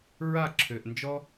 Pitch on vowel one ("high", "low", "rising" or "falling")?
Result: falling